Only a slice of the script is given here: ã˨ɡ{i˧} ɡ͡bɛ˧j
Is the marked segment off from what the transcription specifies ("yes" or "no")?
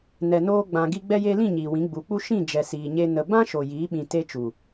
no